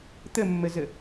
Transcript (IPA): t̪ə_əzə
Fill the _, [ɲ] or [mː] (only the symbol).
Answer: mː